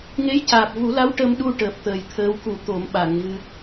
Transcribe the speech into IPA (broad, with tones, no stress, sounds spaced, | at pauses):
ŋ e˧˥ j c aː˨˩ p̚ v u˨˩˦ l a˧˥ w ʈ ə˧ m ɗ u˧ ʈ əː˨˩ p̚ t̪ əː˨˩ j t̪ʰ əː˧˥ w k u˨˩˨ t̪ o˨˩˦ m ɓ a˨˩˨ ŋ v ɨ˧